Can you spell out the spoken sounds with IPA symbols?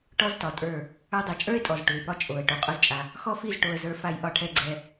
ʈ ɔ˦ z t ɒ˨ tʼ ə˞˦˨ | ə˞˧ dˤ i˨ t͡ʃʼ ə˞˦ ɪ̯ tʼ ɔ˨ z ʈ u˨ ɪ̯ p ɒ˦ t͡ʃʼ o˨ ə̯ ʈ o˨ qʼ o˦ z t͡ʃʼ a˧ | x ɔ˦ f i˦˨ z ʈ o˧ ə̯ z ə˞˧ f a˧ j ʔ ɒ˧ ʈʰ ɛ˧ ɡ͡ǀ ɛ˧

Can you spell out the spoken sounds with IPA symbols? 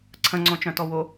ǀʰ ə̃ ŋ͡ǀ õ t͡ʃ œ̃ t ɔ w o

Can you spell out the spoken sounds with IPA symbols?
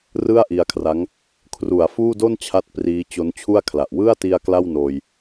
r ɯ˥˩ a̯ ʔ i˧ a̯ kʰ r a˦˥ ŋ | kʰ r u˩˦ a̯ f uː˥˩ d o˥˩ n t͡ɕʰ a˥˩ t̚ p r iː˦˥ t͡ɕ o˦˥ n t͡ɕʰ u˥˩ a̯ kʰ l a˨˩ ʔ w ɯ˥˩ a̯ t i˧ a̯ k l a˥˩ w n oː˧ j

